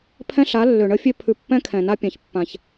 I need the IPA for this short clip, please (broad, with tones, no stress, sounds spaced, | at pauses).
pʰ ɛ̃˦ ɬ a˨˦ lː ø˨ ɳ ə˦ fʲ ø˦ pʰ ʉ˨ pː ɛ̃˦ kʰ ɛ̃˨ n a˦ pʲ ã˨ ç pː ã˨ ç